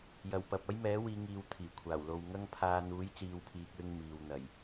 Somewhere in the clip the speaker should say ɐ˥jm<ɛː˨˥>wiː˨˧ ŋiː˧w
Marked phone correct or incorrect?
correct